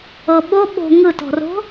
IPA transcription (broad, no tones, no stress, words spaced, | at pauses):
ɤɓo ɓo̤ ŋɯtɔ̤ro̤